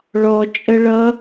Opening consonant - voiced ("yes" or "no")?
yes